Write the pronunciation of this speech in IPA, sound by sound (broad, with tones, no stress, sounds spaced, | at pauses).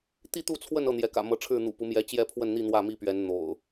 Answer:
t̪ i˥˨ t̪ u˥˨ t͡sʰ w ə˥˨ n ɤ˥˨ n̪ j ɛ˨˦ k ä̰˨˩ m ɤ˨˦ ʈ͡ʂʰ ɻ̩˥˨ n̪ ṵ˨˩ p u˨˦ m j ɛ˨˦ t͡ɕ j ɛ˥˨ pʰ w ə˥˨ n n̪ i˥˨ n̪ w ä˥˨ m i˥˨ p ɥ ɛ˨˦ n n̪ o̰˨˩ ʊ̯